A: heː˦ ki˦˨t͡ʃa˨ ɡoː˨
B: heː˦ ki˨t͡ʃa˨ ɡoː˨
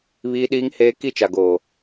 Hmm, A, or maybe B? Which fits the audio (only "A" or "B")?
A